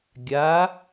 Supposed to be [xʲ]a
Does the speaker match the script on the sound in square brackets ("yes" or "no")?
no